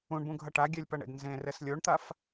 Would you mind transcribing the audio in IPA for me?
ũ ɳ b ũ ɡʱ ʌ ʈ a ɡʲ ɛ lʲ p ʌ ɳ ḛ d n z ẽ r ɛ s lʲ o ɳ t̪ a f

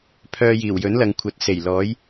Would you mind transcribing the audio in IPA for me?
pʰ œː˨ j iː˨˩ w j ɵ˨˥ n l ɐ˨ ŋ kʷʰ ɐ˨˥ t̚ s e˨˩ j l ɔː˨˥ j

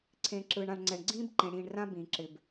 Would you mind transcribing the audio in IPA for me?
ǀʰ ẽ˨ ǁ ɯː˨ ɳ ã˨ ɳ ŋ͡ǀ ɛ˨ ɳ ɡ͡ǀ ĩː˦ b ǃ ẽ˨ ɽ ĩː˨ ɳ r ã˦ b ĩː˨ ǁ ɪ˨ b

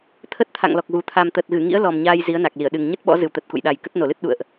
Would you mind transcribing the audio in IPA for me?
t̪ʰ ə˦˥ t̚ t̪ʰ a̰˧˨ ŋ l ɔ˨˩ k̚ ɣ u˨˩ t̪ʰ a˨˩ m t̪ ə˨˩ t̚ ɣ ɨ˧˩ ŋ ḭ˧˥ ə̯ l ɔ˨˩ m ɲ aː˧ j z i˨˦ ə̯ n a˨˩ k̚ l i˧˩ ə̯ ɗ ɨ˨˩ ŋ ɲ ə˦˥ t̚ ɓ ɔ̰˧˥ z ɨ˨˩ w t̪ ə˨˩ t̚ k ṵ˧˨ j ɗ a˨˩ j k ə˦˥ t̚ n o˧˩ l ɨ˦˥ t̚ ɗ ṵ˧˨ ə̯ ʔ

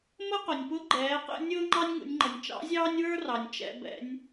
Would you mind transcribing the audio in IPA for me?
m ə˥ q ʊ˩ nʲ p ʊ˧˥ ɡ͡ǃ ɛː˩˧ q ɛ̰˧ nʲ ʊː˥ ŋ͡ǃ ɑ˥ nʲ ŋ ṵ˩˧ nʲ ŋ͡ǃ ʌ˩ nʲ t͡ʃ ɑ̰˧˥ zʲ ɑː˥ nʲ w ə˞˥ r ɑ˩ nʲ t͡ʃ ɛ̰˩˧ b ɛ̰˩˧ nʲ

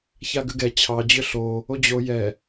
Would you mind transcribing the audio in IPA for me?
ç a ɡ ʏ ɡ ɛ t͡ɕʰ ɑ d͡ʑ ʏ ɬ o | o d͡ʑ o j ɛ

